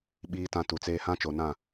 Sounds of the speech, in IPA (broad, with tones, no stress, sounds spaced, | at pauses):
ɓ iː˨ t ã˨ t u˨ t͡s eː˦ h ã˦ t͡ʃ o˨ n ã˦˨